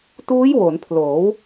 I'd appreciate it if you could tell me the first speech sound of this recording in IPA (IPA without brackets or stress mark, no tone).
t